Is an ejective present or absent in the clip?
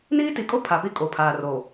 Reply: present